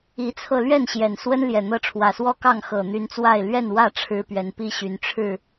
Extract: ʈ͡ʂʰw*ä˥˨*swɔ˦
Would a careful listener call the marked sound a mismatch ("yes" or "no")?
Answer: yes